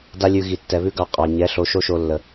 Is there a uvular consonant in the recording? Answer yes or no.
yes